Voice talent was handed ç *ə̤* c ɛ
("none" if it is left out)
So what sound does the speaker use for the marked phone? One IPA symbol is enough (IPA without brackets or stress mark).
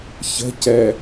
ə̤